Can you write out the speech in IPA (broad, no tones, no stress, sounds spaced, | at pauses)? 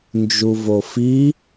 n d͡ʒ u v o f i